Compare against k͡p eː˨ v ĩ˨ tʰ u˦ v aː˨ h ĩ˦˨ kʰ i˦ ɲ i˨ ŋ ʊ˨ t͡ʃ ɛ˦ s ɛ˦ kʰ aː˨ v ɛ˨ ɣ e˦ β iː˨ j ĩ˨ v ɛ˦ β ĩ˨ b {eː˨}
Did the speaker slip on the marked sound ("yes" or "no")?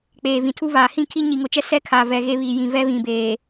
no